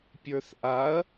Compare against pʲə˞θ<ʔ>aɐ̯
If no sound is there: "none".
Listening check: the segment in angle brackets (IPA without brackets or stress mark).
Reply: ʔ